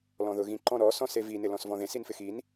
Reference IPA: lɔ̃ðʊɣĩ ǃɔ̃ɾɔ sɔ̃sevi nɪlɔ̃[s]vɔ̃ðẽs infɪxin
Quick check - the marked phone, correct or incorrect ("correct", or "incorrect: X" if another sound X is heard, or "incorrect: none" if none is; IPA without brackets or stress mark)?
correct